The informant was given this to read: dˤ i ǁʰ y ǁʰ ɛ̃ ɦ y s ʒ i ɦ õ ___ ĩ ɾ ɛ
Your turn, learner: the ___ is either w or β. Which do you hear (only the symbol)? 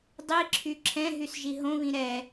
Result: β